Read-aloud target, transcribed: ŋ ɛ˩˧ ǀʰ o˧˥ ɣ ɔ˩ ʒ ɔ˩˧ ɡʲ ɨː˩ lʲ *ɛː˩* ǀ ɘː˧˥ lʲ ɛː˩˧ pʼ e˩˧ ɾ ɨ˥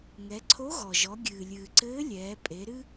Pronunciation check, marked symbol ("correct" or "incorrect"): incorrect